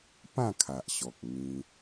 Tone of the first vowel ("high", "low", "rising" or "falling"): falling